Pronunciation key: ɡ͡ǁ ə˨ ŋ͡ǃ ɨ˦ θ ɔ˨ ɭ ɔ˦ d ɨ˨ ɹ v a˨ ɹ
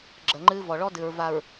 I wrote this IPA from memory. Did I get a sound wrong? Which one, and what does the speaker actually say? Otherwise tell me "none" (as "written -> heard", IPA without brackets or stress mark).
θ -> v